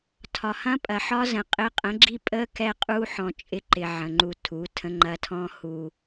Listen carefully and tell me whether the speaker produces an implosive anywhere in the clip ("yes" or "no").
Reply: no